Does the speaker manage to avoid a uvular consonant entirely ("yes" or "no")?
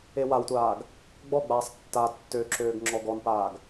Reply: yes